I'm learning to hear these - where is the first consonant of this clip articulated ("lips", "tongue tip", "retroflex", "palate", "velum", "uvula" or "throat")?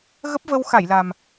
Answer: velum